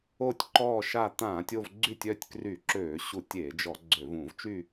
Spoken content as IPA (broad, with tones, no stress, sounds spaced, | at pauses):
o˦˨ tʲ ǃ ɔː˦˨ ʃ a˦˨ t̪ ãː˧˩˧ tʲ o˦˨ v ɡ͡ǀ y˦˨ tʲ œ˦˨ tʲ k r y˧˩˧ ǁ øː˧˩˧ ɕ u˧˩˧ tʲ e˧˩˧ d͡ʒ ɔ˧˩˧ ɡ͡ǀ ø˧˩˧ v ũ˧˩˧ v t͡ʃ y˦˨